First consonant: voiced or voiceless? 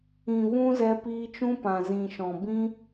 voiced